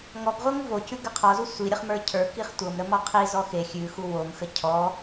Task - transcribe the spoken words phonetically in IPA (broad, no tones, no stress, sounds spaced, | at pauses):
ŋ ɔ ɡ ʁʷ ɤ ŋ v o c ʉ ɡ ə qʰ ɔ z u sʷ i ɾʲ ə χ m ə˞ cʰ ə˞ k i χ tʷ ɤ m ɾ ə m ɔ qʰ i z ɔ x e xʲ ʉ x u w o m x ə cʰ ɔ